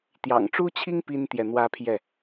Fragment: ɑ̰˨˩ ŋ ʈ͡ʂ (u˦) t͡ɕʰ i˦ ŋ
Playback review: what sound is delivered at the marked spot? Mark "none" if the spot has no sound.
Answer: u˦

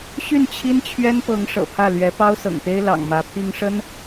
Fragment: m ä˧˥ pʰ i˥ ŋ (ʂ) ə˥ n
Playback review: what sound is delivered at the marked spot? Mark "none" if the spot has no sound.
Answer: ʂ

